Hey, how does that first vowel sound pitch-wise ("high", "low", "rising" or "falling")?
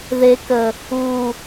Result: low